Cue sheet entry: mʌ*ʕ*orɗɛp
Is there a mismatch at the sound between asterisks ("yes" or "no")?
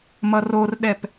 yes